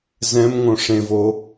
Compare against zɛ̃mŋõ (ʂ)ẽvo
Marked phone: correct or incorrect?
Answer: correct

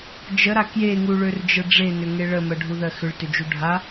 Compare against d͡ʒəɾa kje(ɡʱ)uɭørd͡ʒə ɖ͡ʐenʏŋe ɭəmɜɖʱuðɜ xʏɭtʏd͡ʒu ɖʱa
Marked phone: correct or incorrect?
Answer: incorrect: ŋ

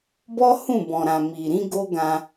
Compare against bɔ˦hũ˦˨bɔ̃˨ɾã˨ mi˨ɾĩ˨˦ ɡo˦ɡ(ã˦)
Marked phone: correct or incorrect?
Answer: incorrect: ã˧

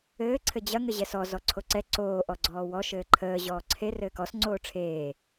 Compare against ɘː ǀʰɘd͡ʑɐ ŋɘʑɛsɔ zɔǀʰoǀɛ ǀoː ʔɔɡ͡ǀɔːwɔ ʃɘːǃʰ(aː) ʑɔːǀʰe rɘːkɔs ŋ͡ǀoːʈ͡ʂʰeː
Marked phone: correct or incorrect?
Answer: incorrect: əː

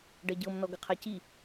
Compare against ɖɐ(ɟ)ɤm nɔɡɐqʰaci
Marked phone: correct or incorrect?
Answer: correct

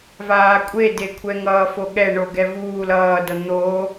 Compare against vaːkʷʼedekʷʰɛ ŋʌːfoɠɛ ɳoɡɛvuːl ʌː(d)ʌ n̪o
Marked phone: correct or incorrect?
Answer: correct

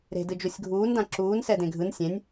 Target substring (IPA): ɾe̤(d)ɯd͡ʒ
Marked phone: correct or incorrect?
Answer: correct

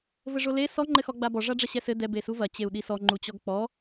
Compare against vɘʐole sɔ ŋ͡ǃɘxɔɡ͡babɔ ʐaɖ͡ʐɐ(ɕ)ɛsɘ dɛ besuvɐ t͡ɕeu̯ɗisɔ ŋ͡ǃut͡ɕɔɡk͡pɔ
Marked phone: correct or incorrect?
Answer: correct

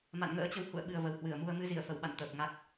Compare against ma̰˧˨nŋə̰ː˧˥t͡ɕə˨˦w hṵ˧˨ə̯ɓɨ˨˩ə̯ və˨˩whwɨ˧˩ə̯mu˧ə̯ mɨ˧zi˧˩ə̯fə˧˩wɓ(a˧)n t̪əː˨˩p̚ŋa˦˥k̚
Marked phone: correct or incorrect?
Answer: incorrect: a̰˧˨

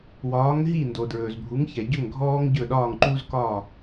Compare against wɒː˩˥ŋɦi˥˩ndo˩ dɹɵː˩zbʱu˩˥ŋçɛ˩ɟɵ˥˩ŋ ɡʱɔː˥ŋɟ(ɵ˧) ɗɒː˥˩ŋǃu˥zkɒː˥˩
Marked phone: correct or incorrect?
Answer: incorrect: ɵ˥˩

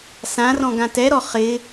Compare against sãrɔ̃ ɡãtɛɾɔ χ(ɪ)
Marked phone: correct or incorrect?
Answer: correct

